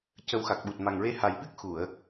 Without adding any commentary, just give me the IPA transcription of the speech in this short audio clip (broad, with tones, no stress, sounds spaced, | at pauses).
c ə˧˥ w x a˨˩ k̚ ɓ u˨˩ t̚ m a˨˩ ŋ ɹ e˧ h a˨˩ j ɓ ɨ˦˥ k̚ x u˨˩˨ ə̯